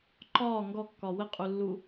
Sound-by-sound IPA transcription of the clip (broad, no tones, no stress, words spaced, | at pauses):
ǃɒː ŋɡɔkːɒ wəqʼulːu